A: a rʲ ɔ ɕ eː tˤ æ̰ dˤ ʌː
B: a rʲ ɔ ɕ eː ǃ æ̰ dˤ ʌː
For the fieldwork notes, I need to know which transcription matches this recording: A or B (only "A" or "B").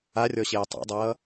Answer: A